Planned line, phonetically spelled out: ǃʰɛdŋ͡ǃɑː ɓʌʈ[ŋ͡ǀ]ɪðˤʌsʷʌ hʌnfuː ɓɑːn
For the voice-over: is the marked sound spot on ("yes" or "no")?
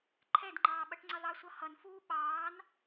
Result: yes